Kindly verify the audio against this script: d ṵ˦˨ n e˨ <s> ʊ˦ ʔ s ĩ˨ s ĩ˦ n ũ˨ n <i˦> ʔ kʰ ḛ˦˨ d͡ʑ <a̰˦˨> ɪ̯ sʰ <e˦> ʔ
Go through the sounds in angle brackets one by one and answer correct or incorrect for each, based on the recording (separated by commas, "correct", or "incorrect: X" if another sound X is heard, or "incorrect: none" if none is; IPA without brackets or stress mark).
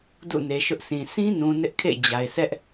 incorrect: ʃ, incorrect: ɪ˦, incorrect: a˨, incorrect: ɛ˦